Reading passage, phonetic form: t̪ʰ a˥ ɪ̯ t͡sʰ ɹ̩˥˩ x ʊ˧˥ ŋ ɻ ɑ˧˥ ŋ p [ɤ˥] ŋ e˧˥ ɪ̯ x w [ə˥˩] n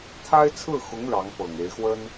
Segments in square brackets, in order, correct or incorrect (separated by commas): incorrect, incorrect